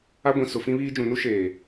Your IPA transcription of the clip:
a˦ ɡʷ ĩ˨ s ʊ˨ f ĩ˦ β iː˦ d͡ʒ ũ˨ n u˦ ʃ eː˨

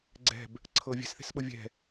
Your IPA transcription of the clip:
ɡ͡ǀ ɛ̤ b | ǀʰ ɤː vʲ ɛ̤ s θ e̤ s ɓ ɤ vʲ ɛ̤

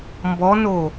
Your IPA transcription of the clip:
m b ɔ n o

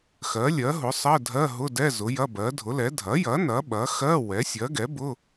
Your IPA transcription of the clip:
x ɜ˩˥ lʲ ɜ˩˥ ɦ ʊ˩˥ sˤ ɜ˧˥˧ dʱ ɜ˧˥˧ ɦ ʊ˧˥˧ d ɛ˧˥˧ z ʊ˩˥ j ɐ˧˥˧ b ɜ˩˥ dʱ ʊ˩˥ l ɛ˩˥ dʱ ɐ˩˥ j ɐ˩˥ n ɐ˩˥ ɓ ɐ˩˥ x ɜ˧˥˧ w ɛ˩˥ sʲ ɜ˩˥ ɡ ɛ˩˥ b ʊ˧˥˧

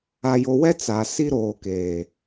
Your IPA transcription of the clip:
a˨ j o˨ w ɛ˦ t͡s a˨ s i˦ ɾ oː˨ k eː˨

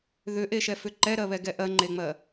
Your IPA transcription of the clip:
ð ʏ ʔ e ʃ ɛ f ʏ ǃ ɛ ɾ ɜ β ɛ ɡ ɛ ʔ ɜ ŋ͡ǃ e ŋ͡m ɜ

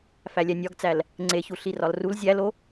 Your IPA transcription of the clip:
f æ lʲ æ nʲ ɒ ɡ t͡s æ l | ŋ͡ǀ e ç u ɬ i r ɒ l r u l zʲ æ l o

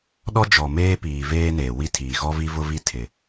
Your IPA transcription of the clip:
ɗ ɔ˦ d͡ʒ ɔ˨ m eː˦ p iː˨ v eː˦ n eː˨ w i˦ tʰ iː˨ ɣ ɔ˦ v i˦ v ʊ˦ v i˦ tʰ ɪ˨

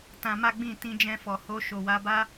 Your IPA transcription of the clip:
t ã˧ m a˦ ɡ͡b ĩ˦˨ t ĩ˧ d͡ʒ ɛ̃˧ f ɔ˨ h o˧ ʃ o˨ w a˧ b a˦

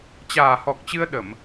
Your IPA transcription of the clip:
t͡ɕ aː˨˩ h ɔ˨˩ k̚ t͡ɕ ɨ˧ ə̯ ɗ ə˧˩˨ m

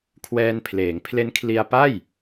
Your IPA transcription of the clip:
kʰ w ɛː˧ n pʰ l eː˩˦ ŋ pʰ l e˦˥ n kʰ l i˧ a̯ p a˥˩ j

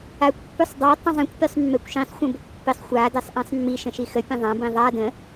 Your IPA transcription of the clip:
a kʷ pː ʉ sˤ dˤ a tˤ ə̃ zˤ ĩ kʷ pʲ ʉ sˤ mː ɛ kʷ ʃ ĩ sˤ xʷ ə̃ b ə kʷ pː i sˤ xʷ a d ɛ sˤ ʔ ĩ sˤ mː i ʃ ə̃ ʃ i x ə pʲ ə̃ ðˤ ã b ĩ ðˤ a d ə̃

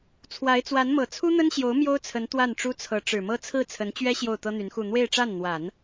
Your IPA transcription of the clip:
t͡sʰ w a˧˥ ɪ̯ t͡s w a˧˥ n m ɤ˨˩ t͡sʰ u˥ n̪ ə˥ n ɕ j o˧˥ ʊ̯ m j o˥ ʊ̯ t͡sʰ ə˧˥ n t̪ w a˥˩ n ʈ͡ʂ u˥ t͡sʰ ɤ˧˥ ʈ͡ʂ ɻ̩˨˩ m ɤ˥ t͡sʰ ɹ̩˥˩ t͡sʰ ə˧˥ n t͡ɕ ɥ ɛ˥ ɕ j o˥˩ ʊ̯ t̪ ɤ˥ n̪ y˧˥ n x u˥˧ n̪ w e˥˧ ɪ̯ ʈ͡ʂ a˥˩ n n̪ w a˨˩˦ n

